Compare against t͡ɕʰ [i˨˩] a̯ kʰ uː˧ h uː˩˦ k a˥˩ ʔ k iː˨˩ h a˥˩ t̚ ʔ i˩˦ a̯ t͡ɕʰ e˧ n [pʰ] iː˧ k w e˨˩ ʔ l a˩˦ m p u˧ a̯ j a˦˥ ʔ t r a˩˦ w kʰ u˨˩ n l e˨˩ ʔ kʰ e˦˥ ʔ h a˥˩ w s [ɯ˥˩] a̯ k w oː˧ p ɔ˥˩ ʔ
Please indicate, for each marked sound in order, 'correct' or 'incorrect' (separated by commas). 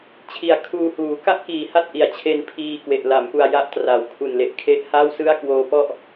correct, correct, correct